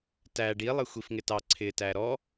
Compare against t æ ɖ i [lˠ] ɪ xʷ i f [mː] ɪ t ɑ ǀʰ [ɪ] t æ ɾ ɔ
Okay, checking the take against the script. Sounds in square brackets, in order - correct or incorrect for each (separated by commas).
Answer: correct, incorrect, correct